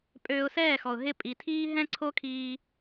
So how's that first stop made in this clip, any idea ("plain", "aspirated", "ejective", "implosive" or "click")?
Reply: ejective